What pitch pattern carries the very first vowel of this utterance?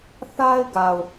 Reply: high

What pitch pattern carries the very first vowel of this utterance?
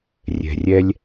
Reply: low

